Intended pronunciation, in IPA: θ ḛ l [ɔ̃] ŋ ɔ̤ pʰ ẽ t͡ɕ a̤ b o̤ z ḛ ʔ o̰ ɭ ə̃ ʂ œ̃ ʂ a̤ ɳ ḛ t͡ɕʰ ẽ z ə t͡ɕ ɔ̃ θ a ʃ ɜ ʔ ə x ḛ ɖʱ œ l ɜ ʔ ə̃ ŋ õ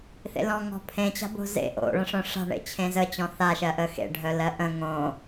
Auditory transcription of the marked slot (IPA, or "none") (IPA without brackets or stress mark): ɔ̃